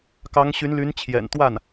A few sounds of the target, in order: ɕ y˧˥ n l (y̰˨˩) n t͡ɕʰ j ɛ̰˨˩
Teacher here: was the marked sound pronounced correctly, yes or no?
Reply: no